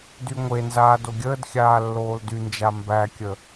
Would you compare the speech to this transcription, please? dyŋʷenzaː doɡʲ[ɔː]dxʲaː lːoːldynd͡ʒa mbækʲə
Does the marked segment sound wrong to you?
yes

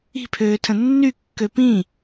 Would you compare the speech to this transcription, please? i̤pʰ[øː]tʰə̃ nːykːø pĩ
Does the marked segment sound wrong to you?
no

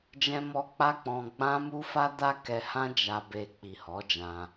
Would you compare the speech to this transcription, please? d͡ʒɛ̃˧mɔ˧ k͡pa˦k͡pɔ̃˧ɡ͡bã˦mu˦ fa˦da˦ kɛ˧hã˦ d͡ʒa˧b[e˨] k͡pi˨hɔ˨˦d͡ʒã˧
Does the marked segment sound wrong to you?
yes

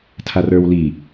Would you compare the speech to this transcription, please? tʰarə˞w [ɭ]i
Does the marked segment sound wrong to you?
yes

